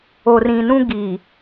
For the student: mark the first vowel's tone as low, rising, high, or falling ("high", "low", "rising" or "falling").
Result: low